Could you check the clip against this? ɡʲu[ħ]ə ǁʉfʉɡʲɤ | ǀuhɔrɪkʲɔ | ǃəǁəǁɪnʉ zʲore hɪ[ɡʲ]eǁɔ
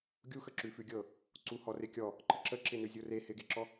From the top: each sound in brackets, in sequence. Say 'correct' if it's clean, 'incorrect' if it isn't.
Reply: incorrect: x, incorrect: ɡ

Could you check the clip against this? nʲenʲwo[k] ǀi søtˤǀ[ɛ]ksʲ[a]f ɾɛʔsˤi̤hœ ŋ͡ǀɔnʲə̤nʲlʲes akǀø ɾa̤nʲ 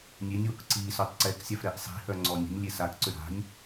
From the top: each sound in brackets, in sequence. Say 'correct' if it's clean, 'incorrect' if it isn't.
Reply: correct, correct, correct

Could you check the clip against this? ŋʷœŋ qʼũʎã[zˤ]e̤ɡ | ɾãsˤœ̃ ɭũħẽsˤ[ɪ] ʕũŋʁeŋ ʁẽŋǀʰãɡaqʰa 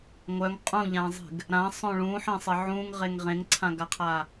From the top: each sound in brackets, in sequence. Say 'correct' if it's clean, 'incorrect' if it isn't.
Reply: correct, correct

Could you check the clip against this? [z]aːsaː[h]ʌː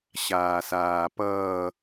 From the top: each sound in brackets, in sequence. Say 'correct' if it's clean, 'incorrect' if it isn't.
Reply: incorrect: ɕ, incorrect: p

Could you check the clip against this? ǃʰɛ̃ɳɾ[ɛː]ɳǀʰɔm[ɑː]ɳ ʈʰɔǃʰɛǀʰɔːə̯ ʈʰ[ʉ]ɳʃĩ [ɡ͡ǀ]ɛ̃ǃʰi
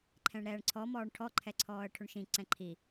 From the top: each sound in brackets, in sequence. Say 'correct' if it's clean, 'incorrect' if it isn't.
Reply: correct, incorrect: ɔː, correct, incorrect: ǀ

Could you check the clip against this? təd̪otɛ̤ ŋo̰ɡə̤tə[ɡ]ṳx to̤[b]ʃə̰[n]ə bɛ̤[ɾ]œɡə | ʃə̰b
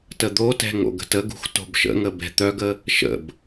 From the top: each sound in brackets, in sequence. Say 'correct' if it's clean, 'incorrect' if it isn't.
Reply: correct, correct, incorrect: ŋ, incorrect: t̪

